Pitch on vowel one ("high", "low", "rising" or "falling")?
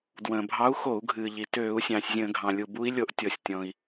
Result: low